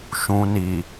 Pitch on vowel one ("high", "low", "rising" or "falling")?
low